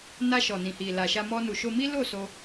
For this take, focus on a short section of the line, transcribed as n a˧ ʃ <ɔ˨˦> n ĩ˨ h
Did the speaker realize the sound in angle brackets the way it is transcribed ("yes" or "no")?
no